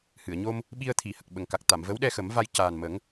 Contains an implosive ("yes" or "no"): yes